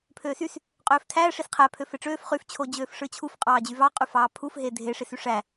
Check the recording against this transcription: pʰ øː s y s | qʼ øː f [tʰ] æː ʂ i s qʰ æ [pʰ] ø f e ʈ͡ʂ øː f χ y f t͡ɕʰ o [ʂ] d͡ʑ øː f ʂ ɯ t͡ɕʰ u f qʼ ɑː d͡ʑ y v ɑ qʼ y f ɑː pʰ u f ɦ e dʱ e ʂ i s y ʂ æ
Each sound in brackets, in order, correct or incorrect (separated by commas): correct, correct, incorrect